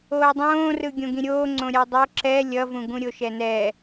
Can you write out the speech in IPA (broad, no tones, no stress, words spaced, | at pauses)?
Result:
oːdˤõːrɯ ɡʲõɡĩɾʲoː ŋ͡ǀõɾʲadˤo ǁɛ lʲʌvũɡũɾʲo ʃɛnɛ